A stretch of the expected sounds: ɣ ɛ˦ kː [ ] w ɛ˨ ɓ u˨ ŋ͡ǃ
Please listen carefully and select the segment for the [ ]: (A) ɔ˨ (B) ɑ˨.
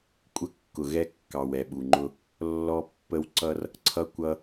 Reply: B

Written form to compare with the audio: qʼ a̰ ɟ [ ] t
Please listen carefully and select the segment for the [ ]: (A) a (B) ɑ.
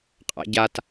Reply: A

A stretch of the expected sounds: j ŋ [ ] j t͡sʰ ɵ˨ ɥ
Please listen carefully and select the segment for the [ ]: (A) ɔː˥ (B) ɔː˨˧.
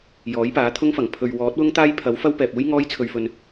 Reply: A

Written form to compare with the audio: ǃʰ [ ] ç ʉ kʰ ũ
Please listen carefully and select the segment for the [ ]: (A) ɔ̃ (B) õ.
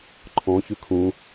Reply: A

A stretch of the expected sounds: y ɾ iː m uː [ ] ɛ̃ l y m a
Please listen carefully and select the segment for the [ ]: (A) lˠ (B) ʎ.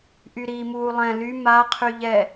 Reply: A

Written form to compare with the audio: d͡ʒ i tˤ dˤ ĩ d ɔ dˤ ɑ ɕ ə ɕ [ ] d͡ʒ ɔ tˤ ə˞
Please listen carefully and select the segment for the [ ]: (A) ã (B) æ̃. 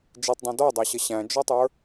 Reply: B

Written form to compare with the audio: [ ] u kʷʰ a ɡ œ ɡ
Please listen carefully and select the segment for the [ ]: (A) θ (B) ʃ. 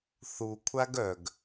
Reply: A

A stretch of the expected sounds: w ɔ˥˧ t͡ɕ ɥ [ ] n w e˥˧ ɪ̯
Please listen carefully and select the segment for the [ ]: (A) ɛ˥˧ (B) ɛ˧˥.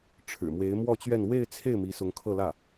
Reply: A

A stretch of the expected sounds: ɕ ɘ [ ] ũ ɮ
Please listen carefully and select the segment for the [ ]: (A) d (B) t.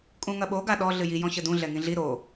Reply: A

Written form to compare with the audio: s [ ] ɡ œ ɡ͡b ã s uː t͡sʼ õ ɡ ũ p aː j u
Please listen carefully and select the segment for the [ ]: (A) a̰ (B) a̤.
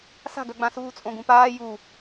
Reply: B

